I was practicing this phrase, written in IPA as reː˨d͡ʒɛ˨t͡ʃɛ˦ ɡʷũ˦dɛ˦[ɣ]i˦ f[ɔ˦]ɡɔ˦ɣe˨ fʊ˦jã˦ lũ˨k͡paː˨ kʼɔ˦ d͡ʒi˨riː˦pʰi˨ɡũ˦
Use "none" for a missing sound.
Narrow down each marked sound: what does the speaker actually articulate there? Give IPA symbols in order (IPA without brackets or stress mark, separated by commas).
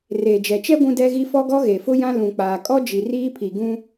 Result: ɣ, ɔ˦